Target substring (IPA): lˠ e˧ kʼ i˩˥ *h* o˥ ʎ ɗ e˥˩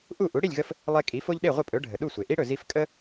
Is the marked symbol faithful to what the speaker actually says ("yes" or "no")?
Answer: no